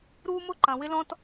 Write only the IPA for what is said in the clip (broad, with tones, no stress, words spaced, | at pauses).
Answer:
ɾuː˦mʊ˦ǃɐ̃˨ wɪ˦lɔ̃˦t